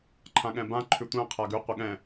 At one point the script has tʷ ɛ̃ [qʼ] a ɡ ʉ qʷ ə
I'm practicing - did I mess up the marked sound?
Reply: yes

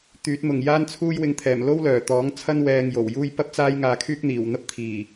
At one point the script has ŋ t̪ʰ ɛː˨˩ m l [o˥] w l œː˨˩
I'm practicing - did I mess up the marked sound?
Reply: no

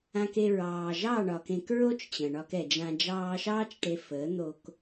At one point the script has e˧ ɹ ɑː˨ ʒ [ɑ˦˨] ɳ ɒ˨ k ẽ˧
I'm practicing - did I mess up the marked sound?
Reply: no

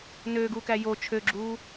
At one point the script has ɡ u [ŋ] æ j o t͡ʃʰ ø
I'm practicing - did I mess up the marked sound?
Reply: yes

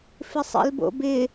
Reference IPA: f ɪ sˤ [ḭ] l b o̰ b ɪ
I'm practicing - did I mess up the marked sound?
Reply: no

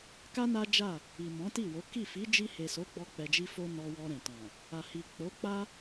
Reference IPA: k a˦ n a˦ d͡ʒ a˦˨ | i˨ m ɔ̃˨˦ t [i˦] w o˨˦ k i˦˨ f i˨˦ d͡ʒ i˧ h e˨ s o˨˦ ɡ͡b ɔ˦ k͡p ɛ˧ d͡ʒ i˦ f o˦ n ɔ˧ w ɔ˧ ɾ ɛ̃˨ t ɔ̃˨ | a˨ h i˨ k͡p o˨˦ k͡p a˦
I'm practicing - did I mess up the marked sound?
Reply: yes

